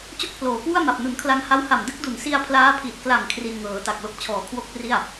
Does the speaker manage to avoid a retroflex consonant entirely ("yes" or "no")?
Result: yes